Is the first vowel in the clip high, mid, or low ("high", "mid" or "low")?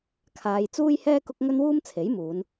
low